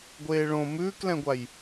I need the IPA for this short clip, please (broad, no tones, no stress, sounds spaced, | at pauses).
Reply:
ɡʷ eː ɭ õ m ʉː k l ɛ̃ ɡʷ a j